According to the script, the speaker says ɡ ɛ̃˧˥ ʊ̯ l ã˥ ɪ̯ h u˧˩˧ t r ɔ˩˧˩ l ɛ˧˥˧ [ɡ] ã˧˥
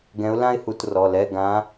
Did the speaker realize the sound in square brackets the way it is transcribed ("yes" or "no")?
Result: yes